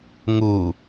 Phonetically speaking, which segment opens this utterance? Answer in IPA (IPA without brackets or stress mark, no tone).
ŋ